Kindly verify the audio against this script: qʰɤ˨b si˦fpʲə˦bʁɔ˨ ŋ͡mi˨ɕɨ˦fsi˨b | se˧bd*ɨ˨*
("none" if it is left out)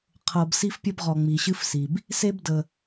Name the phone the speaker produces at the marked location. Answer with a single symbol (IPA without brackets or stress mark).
ə˨